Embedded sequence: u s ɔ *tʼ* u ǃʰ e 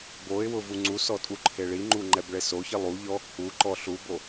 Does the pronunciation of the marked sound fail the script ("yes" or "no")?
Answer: no